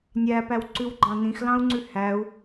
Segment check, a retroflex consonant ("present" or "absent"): absent